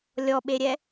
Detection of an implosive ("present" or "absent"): present